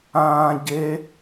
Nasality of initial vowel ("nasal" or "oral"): nasal